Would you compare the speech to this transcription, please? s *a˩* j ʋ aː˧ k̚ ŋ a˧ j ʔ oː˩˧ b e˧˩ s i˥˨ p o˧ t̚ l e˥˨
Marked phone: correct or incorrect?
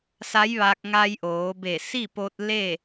incorrect